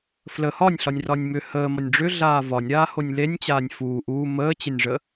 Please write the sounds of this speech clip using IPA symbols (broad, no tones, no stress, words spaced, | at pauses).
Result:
flə hɒnʲɬɒnʲrɒnʲ mʏ həːmɒnʲ ɖ͡ʐʏɮaː vɒnʲɾaːhonʲ lenʲt͡ɕaːnʲ fuː ʔuː məːt͡ɕenʲʐə